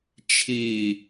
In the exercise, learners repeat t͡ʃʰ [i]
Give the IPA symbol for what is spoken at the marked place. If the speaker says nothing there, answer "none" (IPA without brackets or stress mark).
i